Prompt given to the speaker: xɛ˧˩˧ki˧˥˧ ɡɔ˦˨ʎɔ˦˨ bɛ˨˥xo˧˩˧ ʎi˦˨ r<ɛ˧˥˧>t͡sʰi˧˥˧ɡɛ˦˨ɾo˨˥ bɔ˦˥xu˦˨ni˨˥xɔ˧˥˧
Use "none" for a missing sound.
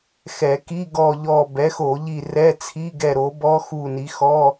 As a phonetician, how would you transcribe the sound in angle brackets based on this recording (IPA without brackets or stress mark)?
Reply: ɛ˧˥˧